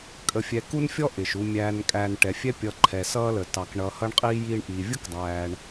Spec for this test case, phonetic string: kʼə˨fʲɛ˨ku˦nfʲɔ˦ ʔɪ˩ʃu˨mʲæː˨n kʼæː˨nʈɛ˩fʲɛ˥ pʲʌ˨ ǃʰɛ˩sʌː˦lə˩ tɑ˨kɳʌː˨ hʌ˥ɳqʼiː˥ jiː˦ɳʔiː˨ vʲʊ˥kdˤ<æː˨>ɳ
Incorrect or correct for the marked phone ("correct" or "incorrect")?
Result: correct